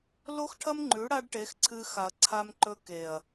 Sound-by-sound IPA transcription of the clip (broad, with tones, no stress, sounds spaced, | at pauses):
l o˦ x ʈʰ ɐ˦ m ŋ͡ǃ ʉ˨˦ ɽ a˦ ɖ ʈ e˨˦ x ǀʰ ɨ˧ x a˨ ɐ̯ ǀʰ a˧ m ǃ ɵ˧ k e˨ ɐ̯